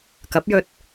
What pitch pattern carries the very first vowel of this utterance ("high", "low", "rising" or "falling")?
rising